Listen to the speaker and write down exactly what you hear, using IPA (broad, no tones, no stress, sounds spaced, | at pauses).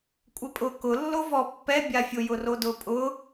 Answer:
kʷʼ ɪ pʼ ʊ k ʊ lː o v ɔ pː ɛ bʲ a fʲ ʊ j ʊ r o d ʊ pʼ ʊ